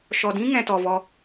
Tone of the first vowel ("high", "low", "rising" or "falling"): low